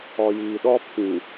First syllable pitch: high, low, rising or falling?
low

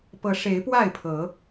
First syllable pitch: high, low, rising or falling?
rising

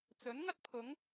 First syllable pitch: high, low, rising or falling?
rising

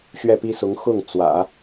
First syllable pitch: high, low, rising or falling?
falling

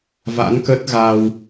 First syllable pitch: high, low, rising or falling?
rising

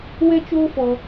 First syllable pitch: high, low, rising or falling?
high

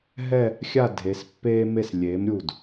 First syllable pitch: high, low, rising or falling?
falling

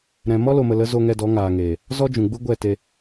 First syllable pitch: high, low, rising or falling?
low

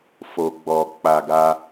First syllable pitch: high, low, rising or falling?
low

